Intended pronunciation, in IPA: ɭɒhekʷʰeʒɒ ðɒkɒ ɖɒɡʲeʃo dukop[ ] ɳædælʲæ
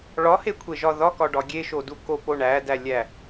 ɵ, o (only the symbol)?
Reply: o